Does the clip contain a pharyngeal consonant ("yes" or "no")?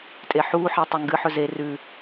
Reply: yes